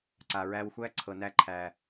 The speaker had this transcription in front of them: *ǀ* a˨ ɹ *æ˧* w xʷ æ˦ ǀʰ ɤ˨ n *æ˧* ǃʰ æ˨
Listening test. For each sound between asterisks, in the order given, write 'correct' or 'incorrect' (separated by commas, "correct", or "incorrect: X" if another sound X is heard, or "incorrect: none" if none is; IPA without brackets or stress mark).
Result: correct, correct, correct